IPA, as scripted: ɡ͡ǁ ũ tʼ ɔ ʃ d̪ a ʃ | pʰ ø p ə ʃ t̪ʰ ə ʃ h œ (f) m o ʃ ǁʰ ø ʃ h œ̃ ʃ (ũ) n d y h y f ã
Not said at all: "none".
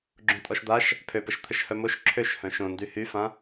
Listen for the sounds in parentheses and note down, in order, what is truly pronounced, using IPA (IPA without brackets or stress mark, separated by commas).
none, õ